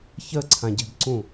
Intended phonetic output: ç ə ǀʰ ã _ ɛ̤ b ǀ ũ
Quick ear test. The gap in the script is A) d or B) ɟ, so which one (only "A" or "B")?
B